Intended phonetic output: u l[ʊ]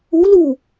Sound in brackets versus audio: incorrect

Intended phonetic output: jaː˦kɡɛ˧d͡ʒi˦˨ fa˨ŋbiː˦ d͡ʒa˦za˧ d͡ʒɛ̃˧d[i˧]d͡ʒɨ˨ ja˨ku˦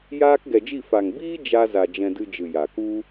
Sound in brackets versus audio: incorrect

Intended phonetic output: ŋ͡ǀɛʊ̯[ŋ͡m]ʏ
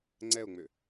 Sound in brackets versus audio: correct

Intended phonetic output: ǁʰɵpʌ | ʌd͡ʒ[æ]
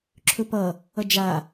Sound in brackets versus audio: incorrect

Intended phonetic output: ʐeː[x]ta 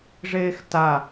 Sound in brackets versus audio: correct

